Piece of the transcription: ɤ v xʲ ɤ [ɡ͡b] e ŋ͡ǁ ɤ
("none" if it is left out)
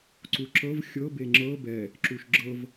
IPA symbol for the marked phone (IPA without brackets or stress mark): b